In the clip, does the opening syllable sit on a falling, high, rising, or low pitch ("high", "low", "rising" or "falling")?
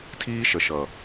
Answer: high